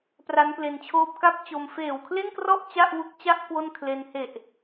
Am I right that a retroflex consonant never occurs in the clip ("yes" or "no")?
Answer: yes